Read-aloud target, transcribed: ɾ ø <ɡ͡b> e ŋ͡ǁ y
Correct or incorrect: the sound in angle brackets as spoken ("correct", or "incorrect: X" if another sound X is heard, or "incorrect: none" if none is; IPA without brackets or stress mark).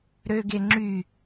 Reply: incorrect: ɡ